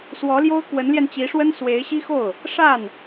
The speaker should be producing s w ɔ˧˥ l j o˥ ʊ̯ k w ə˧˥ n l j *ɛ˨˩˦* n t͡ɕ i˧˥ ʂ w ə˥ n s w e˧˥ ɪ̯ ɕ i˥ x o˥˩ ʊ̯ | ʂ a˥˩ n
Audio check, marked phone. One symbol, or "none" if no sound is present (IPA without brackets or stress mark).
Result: ɛ˧